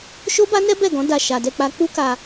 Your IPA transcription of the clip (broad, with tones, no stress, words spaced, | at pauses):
ʃo˦ba˦nɛ˦ bɛ˦˨ɡɔ̃˨˦ da˦˨ʃa˧ dɛ˧k͡pa˧ k͡pu˦ka˧